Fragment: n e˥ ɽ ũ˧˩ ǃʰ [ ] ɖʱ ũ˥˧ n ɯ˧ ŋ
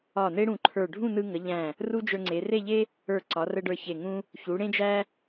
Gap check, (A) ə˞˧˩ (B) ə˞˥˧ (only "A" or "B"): A